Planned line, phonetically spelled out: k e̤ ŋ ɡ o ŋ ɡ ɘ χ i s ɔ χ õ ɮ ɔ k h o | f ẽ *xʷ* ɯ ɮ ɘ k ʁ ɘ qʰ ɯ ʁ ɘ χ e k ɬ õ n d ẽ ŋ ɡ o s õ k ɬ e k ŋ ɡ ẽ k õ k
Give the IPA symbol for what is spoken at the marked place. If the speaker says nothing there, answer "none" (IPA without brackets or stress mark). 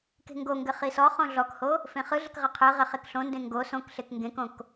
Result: χ